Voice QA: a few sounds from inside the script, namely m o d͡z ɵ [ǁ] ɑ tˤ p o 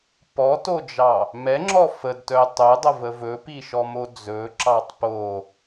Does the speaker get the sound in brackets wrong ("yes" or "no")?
no